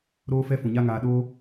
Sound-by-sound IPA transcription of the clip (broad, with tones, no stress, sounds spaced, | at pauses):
ɾ oː˦ f ɛ˦ f ũ˨ ɲ a˦ ŋ aː˧ ɗ oː˦